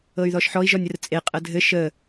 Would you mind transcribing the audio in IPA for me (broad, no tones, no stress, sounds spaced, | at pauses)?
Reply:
ɤ y̯ ð ɔ ʃ ħ ɔ i̯ ʒ ɔ nʲ ə r t͡sʼ e qʼ ə dʱ ɘ ʃ ə